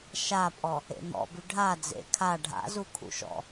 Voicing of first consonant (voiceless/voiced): voiceless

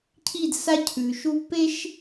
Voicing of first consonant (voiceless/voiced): voiceless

